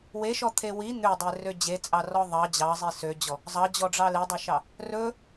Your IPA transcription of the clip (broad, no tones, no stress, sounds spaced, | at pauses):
w e ʃ ɔ t̪ʰ e w i n̪ ø dˤ e r ø d͡ʑ e t͡sʼ ɑ r ɔ ðˤ ɑ d͡ʑ ɑ zˤ i s ø d͡ʑ ɔ | zˤ ɑ d͡ʑ ɔ ɖ͡ʐ ɑ l e dˤ ɵ ʃ ɑ | r ɵ